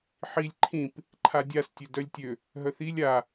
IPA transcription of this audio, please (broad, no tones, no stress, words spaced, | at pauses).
ħilʲ ǃʰĩp | ǃʰadʲas tʲødœlʲtʲø | ɦœθilʲ a